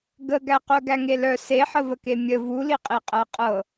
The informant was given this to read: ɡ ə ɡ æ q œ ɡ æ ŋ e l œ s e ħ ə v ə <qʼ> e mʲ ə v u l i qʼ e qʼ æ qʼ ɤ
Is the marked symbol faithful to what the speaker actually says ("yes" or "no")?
no